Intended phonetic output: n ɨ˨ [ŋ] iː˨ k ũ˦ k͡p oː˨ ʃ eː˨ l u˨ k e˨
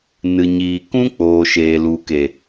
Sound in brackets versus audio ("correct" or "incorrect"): incorrect